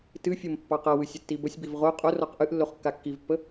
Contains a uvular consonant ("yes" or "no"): yes